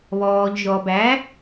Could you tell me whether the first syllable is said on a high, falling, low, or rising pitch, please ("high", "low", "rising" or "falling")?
low